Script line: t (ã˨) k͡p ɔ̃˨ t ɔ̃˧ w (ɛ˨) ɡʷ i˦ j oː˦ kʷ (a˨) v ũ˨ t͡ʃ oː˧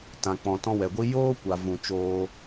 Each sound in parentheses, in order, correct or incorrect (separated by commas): correct, correct, correct